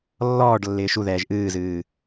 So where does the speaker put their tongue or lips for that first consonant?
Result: tongue tip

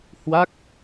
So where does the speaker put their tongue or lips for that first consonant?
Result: throat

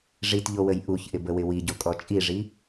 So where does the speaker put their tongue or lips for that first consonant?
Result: retroflex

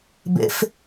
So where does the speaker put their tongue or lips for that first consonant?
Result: lips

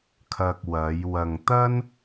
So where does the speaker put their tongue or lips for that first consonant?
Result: velum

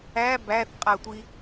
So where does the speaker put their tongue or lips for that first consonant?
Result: lips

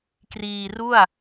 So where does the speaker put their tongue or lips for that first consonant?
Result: velum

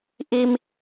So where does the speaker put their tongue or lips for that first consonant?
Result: throat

